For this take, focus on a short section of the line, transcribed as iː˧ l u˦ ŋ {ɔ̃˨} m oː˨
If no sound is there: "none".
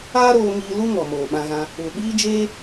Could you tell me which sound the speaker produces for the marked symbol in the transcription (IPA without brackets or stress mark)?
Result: ɔ˨